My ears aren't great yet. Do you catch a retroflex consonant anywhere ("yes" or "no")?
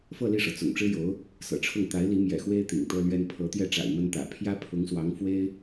yes